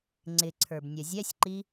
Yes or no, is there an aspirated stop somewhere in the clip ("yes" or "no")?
yes